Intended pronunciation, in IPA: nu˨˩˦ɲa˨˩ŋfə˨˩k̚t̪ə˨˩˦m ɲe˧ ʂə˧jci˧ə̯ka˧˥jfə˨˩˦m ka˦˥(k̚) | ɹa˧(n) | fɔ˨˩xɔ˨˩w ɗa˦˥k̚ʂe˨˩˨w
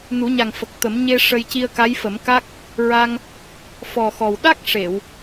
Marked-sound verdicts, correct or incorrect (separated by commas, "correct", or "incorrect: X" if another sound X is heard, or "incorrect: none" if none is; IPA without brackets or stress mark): correct, incorrect: ŋ